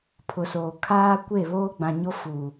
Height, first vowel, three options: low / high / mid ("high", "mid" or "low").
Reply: high